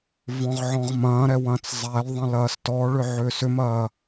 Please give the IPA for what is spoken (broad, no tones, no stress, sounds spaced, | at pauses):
v ɔ̃ ʁ ʕ ɔ̃ ʁ m ɐ̃ː ɾ ɛ w ɐ̃ː t͡s zˤ æ l ðˤ ɐ̃ l ɐː s t ɔ ɭ ʏ ʕ ʏː s ʏ m ɐː